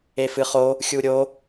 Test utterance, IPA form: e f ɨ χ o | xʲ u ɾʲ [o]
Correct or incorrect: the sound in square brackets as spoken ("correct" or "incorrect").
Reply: correct